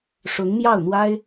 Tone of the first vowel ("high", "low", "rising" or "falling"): rising